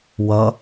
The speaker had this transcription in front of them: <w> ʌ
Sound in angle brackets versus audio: correct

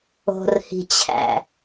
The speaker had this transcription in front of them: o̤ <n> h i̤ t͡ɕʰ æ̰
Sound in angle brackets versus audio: incorrect: r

